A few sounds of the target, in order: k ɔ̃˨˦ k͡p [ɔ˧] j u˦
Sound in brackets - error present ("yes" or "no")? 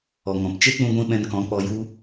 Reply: no